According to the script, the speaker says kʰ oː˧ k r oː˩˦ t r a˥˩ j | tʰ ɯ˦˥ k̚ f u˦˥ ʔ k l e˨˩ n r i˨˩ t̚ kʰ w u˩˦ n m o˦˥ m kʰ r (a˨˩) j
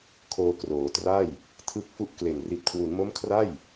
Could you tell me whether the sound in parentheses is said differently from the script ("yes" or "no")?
yes